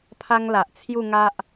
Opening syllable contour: high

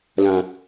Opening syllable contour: low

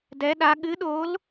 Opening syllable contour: rising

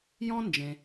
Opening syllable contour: high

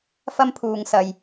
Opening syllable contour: high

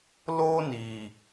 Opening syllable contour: high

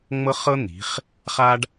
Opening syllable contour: high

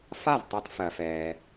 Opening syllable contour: falling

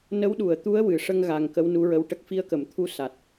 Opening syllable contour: rising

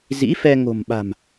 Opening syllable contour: rising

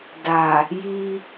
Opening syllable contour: low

